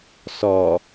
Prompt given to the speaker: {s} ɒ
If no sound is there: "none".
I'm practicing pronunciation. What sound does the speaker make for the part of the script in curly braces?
s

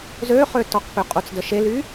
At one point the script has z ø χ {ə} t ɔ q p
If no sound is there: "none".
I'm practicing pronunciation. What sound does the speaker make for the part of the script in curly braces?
ø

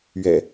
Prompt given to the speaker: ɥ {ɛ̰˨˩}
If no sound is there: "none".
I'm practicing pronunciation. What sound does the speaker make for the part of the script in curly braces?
ɛ̰˨˩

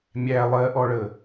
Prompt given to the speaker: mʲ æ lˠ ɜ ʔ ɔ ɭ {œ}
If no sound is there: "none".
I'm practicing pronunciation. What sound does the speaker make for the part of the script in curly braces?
ə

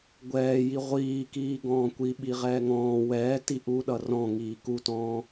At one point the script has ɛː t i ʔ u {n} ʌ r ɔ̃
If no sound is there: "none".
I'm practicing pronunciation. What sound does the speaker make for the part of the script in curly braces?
ɗ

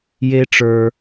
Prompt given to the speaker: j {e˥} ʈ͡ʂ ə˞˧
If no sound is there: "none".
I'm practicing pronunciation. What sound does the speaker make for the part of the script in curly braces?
e˥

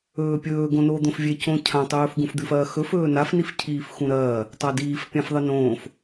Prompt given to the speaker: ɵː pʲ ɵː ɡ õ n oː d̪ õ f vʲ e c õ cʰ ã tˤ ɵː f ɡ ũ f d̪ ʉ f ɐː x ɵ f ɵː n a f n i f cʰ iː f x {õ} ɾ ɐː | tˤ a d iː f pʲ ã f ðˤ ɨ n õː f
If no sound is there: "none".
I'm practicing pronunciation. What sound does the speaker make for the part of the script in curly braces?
ũ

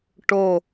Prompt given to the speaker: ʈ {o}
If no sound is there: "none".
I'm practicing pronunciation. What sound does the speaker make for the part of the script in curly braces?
o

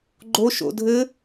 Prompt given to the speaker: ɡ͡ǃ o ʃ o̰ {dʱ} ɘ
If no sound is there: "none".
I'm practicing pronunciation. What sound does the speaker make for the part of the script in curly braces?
dʱ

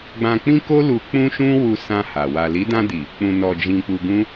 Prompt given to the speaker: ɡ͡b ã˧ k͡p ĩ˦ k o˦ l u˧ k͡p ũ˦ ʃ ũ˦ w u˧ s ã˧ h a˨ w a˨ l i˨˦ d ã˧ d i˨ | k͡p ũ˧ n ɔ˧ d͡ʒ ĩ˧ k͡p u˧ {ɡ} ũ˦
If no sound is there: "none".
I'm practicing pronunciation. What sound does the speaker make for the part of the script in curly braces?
ɡ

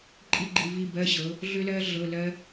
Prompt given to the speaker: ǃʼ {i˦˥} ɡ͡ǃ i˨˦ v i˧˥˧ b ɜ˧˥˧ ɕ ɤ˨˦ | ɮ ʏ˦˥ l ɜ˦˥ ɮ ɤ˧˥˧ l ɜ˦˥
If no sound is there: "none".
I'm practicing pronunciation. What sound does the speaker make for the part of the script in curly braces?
i˦˥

